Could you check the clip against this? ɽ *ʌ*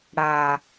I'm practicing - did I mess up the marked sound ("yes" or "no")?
yes